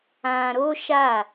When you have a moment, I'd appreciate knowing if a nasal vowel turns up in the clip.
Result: yes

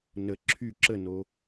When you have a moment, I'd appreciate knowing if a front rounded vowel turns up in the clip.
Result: yes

